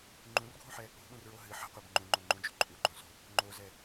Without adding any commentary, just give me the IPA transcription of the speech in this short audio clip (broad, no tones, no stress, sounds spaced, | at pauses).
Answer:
ŋ͡ǃ ũ r ɡʱ ũ ħ ɛ | o̤ ɓ ũ r ɹ o ɦ ɨ ħ ə̤ qʷ ɛ b ŋ͡ǃ ũ ŋ͡ǃ õ ŋ͡ǃ ũ d͡ʒ ṳ ǃʼ u ɡ͡ǃ õ s o̤ | ŋ͡ǃ o z ɛ